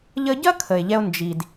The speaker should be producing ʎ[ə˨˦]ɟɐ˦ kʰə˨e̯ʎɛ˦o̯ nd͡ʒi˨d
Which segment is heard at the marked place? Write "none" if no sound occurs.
ə˧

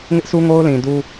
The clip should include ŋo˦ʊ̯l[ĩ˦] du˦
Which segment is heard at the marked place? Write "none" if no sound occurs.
ĩ˨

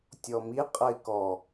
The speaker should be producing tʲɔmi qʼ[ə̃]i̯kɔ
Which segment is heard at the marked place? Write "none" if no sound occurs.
ə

